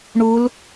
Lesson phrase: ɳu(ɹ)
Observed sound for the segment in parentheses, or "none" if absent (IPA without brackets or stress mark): l